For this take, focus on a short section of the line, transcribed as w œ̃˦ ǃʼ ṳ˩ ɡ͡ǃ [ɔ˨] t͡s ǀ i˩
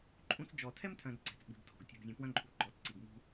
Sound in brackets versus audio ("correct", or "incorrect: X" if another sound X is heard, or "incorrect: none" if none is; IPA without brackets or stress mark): correct